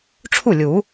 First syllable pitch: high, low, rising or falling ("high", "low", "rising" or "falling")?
falling